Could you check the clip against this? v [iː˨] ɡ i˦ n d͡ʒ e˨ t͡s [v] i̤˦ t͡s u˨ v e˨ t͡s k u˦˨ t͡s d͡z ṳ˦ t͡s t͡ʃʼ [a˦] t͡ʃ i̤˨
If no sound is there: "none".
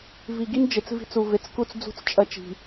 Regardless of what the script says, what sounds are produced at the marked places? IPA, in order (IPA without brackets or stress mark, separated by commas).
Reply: i˨, v, ɐ˦